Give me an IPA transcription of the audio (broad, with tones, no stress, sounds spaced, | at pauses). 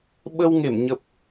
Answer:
ɓ ə˧ w ŋ e˧˩ m ɲ ə˨˩ p̚